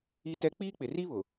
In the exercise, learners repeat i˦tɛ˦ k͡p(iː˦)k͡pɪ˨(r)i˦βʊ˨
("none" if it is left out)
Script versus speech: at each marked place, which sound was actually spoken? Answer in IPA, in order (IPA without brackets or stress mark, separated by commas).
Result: iː˦, r